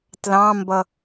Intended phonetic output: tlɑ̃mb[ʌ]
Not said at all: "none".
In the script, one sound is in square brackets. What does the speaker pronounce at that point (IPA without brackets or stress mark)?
ʌ